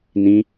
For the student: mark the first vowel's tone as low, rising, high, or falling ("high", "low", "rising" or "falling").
high